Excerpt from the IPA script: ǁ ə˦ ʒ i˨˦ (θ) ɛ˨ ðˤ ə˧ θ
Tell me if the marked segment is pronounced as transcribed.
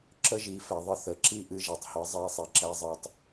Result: no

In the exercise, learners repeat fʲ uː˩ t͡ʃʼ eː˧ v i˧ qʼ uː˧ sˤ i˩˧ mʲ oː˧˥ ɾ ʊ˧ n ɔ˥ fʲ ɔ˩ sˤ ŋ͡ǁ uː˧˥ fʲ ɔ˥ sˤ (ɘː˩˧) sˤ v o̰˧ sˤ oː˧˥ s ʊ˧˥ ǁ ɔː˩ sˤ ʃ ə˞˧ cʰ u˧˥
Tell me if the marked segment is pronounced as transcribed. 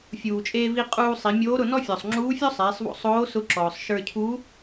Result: no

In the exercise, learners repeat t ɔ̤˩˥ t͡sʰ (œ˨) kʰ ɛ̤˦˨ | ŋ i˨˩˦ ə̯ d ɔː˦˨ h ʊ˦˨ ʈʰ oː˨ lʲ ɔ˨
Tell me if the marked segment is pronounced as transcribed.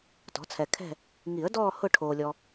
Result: no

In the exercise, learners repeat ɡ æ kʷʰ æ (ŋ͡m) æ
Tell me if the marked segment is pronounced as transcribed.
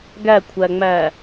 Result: yes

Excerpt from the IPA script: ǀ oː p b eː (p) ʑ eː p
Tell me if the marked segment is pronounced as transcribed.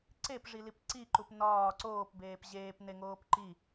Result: yes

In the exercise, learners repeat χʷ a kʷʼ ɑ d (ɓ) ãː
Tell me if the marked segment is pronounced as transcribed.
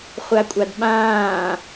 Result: yes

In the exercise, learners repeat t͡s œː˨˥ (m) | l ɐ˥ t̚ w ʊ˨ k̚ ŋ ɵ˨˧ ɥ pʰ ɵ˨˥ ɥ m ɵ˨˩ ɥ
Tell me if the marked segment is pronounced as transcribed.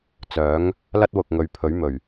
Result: no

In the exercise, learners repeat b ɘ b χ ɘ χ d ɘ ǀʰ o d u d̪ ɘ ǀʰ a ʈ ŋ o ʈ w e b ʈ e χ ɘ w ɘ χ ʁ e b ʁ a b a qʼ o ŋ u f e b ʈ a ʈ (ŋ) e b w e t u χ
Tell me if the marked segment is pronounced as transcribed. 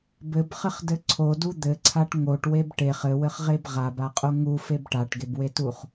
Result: no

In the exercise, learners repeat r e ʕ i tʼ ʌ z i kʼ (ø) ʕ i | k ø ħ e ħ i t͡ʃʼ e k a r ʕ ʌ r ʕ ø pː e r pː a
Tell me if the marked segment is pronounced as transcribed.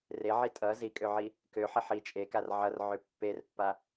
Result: yes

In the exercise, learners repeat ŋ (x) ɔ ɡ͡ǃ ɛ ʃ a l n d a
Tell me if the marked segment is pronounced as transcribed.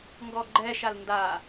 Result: no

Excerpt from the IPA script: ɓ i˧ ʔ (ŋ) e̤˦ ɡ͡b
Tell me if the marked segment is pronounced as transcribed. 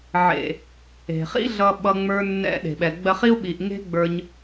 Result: yes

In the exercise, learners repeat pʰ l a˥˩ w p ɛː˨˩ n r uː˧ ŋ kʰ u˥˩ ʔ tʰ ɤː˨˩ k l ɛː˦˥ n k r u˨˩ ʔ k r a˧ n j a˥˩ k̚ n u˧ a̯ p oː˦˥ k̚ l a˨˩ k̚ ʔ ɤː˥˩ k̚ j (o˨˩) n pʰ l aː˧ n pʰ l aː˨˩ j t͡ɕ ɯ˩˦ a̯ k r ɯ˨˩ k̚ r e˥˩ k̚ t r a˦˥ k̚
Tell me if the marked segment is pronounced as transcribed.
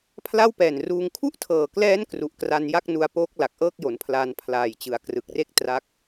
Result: no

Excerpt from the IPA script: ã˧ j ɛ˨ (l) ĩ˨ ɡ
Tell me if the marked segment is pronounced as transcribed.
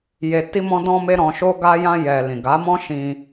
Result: yes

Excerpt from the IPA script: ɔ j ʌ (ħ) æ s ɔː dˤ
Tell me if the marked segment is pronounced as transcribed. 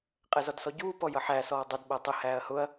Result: yes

